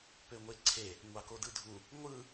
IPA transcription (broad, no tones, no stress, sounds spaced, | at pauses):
p ø ŋʷ e ǀʰ e | ŋʷ ɑ k o d ɯ dʱ u | ŋʷ ɯ